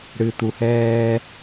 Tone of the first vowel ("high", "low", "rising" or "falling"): low